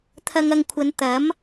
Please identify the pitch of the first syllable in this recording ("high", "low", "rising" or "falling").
low